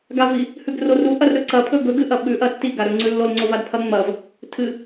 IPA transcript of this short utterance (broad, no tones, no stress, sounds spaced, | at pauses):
ɡ a v i | h ʉ ɡ r o r u ʔ ɐ r ɾ ɵ ǀ ɐ pʰ ɵ ɡ ɵ ɡ ɨ ʔ ɐ ɓ ʉ ʔ ɐ tː i ɡ a ɾ ɵ ŋ͡ǀ ʉ lː o l ŋ͡ǀ o v a d pʰ ɐ ŋ͡m ɐ v | tʰ ɨ